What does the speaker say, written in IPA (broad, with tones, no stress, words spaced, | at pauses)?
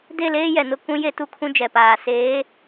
de˦˨leː˦jɛ˨nʊ˦ kũ˦ je˦tu˦kʰũ˦ d͡ʒɛ˨paː˨seː˨˦